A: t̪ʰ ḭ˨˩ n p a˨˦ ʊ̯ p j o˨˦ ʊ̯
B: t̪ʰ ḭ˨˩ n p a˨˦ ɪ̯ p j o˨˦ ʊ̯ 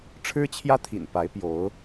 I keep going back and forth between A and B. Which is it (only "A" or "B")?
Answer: B